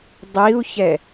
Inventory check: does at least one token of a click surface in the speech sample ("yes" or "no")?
no